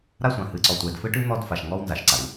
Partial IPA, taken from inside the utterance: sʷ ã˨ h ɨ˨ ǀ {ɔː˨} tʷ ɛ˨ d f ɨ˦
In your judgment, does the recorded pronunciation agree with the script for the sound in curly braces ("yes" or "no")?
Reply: no